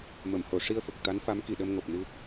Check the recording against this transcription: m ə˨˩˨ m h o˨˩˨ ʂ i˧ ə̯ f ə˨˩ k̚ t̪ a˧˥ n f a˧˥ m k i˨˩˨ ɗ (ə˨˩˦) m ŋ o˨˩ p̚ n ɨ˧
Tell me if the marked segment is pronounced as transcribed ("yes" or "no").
no